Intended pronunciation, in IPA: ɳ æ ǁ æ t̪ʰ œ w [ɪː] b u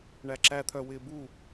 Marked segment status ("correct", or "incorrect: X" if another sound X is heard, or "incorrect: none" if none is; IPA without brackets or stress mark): correct